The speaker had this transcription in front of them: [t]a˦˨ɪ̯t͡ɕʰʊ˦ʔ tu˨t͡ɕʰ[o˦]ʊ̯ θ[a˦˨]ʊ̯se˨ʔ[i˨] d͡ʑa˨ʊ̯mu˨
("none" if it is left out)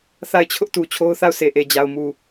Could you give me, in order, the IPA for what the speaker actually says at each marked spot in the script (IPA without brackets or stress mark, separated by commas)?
θ, o˦, a˦˨, e˨